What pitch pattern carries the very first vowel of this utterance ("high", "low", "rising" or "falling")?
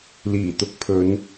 low